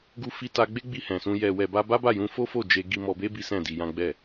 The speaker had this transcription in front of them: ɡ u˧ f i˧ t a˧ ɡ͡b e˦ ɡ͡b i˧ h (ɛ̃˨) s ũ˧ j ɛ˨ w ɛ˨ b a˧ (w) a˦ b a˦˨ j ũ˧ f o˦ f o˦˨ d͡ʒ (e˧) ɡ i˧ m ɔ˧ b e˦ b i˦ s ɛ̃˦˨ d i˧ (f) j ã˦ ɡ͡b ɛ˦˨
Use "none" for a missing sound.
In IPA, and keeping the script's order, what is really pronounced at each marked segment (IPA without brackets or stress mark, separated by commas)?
ɛ̃˨, b, e˧, none